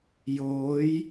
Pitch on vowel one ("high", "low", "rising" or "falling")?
rising